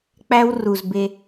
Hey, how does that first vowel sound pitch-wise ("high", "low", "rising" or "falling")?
high